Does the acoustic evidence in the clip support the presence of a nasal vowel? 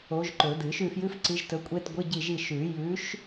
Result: no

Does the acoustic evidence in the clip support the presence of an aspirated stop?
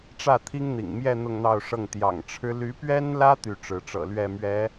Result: yes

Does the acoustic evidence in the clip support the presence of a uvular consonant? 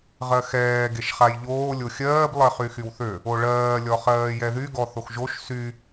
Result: yes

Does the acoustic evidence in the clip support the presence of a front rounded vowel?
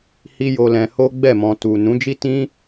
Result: no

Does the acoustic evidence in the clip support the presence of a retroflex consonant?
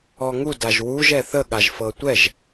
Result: no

